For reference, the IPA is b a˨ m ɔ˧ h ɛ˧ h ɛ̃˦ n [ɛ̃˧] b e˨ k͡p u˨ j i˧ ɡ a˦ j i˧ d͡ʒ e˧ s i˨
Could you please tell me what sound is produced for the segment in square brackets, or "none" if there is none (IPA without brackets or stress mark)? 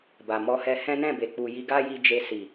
ɛ̃˦˨